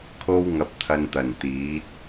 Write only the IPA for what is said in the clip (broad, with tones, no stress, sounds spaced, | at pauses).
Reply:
kʰ o˥ w ŋ ɐ˧ p̚ t̪ʰ ɐ˧ n t̪ ɐ˨˩ n t̪ iː˨˥ t̚